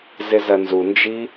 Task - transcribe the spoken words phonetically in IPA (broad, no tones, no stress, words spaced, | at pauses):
zɪzɐnzund͡ʒi